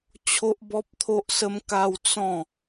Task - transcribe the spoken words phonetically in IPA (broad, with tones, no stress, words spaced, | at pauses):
t͡ɕʰo˦ʔbɔ˦p̚ t̪ʰo˦ʔsə˦mka˦w t͡sɔ̃˥˧